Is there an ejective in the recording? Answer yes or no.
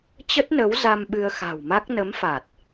no